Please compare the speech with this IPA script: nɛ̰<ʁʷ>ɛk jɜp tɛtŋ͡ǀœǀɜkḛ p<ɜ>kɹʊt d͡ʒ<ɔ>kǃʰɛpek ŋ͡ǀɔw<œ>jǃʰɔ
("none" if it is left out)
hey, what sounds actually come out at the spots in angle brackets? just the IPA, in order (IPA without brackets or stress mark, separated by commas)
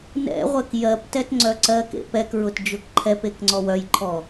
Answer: ʁʷ, ɛ, ʊ, œ